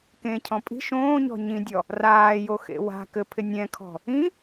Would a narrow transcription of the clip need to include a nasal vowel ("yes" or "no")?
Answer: yes